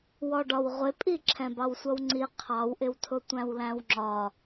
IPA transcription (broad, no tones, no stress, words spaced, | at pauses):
wɔɖɒwʁʷɪpʼi ǁʰɛ̃bɑwsʷʌwŋ͡ǀi qʰɑwʔɪwtʰʊ tʷæ̃wlæ̃wŋ͡ǁɒ